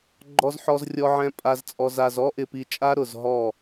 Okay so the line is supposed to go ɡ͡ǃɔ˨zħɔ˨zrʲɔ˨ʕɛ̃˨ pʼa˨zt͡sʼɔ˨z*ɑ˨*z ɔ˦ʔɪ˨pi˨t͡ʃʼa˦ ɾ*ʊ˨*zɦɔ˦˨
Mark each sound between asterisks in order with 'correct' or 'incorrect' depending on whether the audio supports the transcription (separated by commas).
incorrect, correct